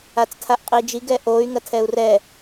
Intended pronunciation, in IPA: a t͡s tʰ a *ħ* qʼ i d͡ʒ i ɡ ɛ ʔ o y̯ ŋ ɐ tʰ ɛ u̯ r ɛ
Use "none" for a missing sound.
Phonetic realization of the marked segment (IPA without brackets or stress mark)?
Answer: ʔ